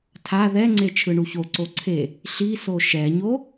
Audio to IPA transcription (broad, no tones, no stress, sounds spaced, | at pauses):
tʰ a ð ɛ ŋ͡ǀ e t͡ʃʰ ɯ ɳ u ç o ǀ o ǀʰ e | ɬ i s o ʃ ɛ ɲ o